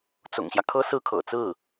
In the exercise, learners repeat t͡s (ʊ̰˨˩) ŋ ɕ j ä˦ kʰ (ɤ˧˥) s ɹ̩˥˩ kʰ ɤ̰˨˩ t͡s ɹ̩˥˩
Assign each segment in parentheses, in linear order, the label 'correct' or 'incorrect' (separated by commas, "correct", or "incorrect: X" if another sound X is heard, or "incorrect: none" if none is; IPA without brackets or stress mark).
correct, incorrect: ɤ˥